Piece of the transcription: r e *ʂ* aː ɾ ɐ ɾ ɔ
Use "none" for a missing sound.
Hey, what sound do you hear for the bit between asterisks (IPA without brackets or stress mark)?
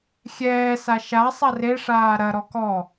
ʂ